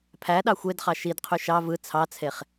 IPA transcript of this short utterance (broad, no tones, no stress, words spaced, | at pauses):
pʰæ ɗɑxʷedχɑ ʃidqʰy ʃɑ vɯ t͡sʰɑt͡sʰeχ